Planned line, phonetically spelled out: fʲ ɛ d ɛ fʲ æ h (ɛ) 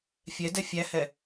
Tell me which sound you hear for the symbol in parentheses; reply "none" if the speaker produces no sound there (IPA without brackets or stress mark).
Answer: ɛ